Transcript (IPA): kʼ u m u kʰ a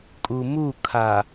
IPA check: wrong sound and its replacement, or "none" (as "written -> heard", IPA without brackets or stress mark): none